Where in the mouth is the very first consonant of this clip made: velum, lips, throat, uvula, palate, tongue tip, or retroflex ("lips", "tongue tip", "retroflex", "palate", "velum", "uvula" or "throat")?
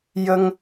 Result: palate